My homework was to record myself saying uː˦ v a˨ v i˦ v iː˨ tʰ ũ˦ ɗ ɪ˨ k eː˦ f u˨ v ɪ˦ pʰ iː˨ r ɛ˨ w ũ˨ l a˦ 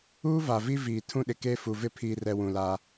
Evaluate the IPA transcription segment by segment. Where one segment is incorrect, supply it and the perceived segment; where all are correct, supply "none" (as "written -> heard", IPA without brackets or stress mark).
none